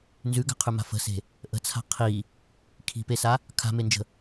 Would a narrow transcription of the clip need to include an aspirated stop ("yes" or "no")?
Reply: yes